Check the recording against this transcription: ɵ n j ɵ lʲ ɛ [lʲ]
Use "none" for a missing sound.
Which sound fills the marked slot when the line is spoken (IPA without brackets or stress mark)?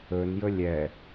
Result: none